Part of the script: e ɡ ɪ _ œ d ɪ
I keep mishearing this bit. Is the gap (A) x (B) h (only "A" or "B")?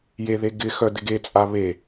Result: A